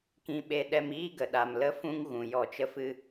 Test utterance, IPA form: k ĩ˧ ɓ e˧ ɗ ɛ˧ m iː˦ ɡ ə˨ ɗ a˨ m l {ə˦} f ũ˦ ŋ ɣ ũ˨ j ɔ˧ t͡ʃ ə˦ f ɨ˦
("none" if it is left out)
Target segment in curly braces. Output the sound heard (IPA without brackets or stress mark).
ə˦